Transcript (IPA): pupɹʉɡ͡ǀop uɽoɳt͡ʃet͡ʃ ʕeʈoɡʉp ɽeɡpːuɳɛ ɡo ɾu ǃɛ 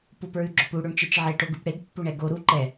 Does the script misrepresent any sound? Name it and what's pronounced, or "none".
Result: ɡ͡ǀ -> ɡ͡ǁ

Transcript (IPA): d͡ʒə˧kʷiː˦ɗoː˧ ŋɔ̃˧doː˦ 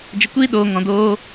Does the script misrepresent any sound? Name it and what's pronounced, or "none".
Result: none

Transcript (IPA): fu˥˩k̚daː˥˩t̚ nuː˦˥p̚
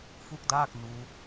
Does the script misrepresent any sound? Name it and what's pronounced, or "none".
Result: t̚ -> k̚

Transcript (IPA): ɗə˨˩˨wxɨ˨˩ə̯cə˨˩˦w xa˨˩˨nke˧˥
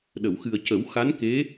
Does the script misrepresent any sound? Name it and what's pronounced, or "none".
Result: a˨˩˨ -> a˧˥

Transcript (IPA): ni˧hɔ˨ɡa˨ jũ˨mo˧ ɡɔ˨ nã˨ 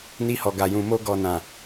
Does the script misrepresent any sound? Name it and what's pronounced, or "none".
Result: none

